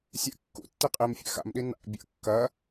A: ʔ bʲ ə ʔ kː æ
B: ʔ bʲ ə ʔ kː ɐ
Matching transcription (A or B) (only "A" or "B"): B